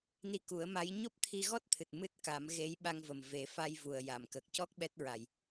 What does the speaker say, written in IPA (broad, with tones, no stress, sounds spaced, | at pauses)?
n i˧ k u˨˩˦ ə̯ m a˧˥ j ɲ o˦˥ p̚ t̪ʰ i˧ ɣ ɔ˦˥ t̚ t̪ʰ ɨ˨˩ t̚ m ɨ˦˥ t̚ k a˨˩˦ m ɣ e˧˥ j ɓ a˧ ŋ v ə˨˩ m v e˨˩˦ f a˧ j v u˨˩ ə̯ j a˨˩˨ m k ə˨˩ k̚ c ɔ˦˥ k̚ ɓ ɛ˦˥ t̚ ɹ a˨˩ j